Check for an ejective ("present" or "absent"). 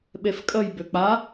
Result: present